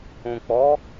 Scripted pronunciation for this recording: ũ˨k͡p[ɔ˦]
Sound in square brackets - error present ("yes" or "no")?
yes